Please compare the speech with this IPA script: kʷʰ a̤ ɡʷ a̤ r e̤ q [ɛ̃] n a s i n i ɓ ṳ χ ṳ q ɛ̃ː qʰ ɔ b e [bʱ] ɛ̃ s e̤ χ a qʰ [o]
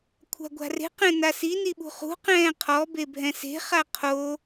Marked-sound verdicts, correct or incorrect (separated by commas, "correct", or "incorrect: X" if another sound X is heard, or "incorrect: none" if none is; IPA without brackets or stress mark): correct, correct, correct